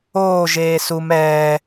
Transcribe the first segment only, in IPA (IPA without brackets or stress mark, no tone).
oː